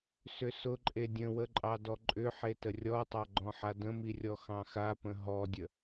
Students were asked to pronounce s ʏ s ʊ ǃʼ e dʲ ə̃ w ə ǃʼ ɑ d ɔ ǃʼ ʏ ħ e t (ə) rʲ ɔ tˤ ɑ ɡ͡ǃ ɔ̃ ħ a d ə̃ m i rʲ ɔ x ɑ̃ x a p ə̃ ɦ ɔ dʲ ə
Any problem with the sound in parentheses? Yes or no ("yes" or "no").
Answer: no